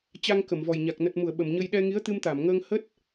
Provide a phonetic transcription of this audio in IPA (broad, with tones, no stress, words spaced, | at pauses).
t͡ɕa˧ŋkə˧˩mvɔ˨˩jɲa˨˩k̚ nə˨˩t̚mu˧˩ə̯ ɓə˧˩mɲə˧j ɗɛ˧ŋi˨˦ə̯t̪ɨ˧m t̪a˧˩mŋəː˧ŋhə˦˥t̚